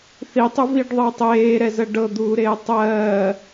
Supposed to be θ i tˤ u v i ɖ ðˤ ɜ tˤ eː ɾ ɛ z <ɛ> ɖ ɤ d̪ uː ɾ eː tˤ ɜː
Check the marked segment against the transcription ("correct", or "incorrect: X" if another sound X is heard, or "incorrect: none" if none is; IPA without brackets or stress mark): incorrect: ɜ